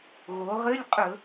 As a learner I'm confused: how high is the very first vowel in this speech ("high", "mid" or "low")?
mid